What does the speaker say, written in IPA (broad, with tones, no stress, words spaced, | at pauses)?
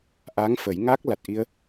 ʔa˧˥ŋfə˨˩˦j ŋa˦˥k̚ la˨˩t̚ʔi˧ə̯